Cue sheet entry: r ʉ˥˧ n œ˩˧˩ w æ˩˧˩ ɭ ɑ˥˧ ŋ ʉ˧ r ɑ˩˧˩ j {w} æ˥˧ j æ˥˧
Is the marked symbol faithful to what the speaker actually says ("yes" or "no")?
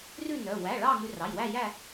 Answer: yes